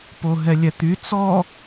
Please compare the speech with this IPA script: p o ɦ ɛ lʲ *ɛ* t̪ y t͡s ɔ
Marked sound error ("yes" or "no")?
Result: no